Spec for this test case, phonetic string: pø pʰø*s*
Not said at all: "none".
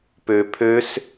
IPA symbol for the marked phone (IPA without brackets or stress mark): s